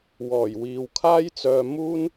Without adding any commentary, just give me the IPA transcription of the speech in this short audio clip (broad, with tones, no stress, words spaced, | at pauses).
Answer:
wɔː˨˩j wiː˨wkʰaː˥jt͡sœː˧ muː˥n